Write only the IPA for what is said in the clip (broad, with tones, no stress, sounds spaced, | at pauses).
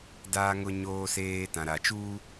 d aː˨ ŋ ʊ˨ ɲ oː˨ s eː˨ t ã˨ ɾ a˨ t͡ʃ uː˦